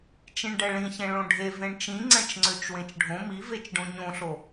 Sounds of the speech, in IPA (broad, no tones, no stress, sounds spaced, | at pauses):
t͡ʃ ĩ ɳ ɖ ɛ ɭ ĩ ç ẽ ɭ õ ɖʱ e v ẽ ɳ t͡ʃ ĩ ŋ͡ǀ ɛ̃ t͡ʃ ŋ͡ǀ ø t͡ʃ w ẽ t͡ʃ ɖʱ õ m i v e t͡ʃ ɖ õ ɲ õ ɬ o